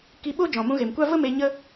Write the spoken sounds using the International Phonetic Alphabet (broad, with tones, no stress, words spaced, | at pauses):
ki˧ɓo˦ d͡ʒɔ̃˨mũ˧ɣe˨mkʷa˦ və˦me˧ ɲə˦